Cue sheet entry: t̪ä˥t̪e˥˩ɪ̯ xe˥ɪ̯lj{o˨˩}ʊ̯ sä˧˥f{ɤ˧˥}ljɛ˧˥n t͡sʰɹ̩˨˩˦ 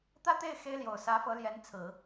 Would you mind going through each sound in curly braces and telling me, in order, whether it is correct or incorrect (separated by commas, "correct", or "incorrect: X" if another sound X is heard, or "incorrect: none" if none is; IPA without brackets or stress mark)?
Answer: correct, correct